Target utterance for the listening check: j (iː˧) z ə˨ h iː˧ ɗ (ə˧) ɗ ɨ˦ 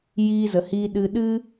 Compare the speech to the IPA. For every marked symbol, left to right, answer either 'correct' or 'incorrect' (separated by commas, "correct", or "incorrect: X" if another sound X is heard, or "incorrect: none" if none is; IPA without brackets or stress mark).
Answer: correct, incorrect: ɨ˧